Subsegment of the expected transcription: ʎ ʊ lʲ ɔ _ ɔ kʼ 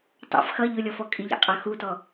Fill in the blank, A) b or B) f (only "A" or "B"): B